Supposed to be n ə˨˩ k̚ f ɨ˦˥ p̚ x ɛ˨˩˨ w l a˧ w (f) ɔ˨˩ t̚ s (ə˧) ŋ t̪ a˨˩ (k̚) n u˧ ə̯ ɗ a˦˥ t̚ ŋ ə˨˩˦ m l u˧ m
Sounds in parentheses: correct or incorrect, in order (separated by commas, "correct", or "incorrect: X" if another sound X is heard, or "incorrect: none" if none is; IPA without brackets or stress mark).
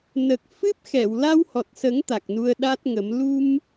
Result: incorrect: h, incorrect: ə˨˩˦, correct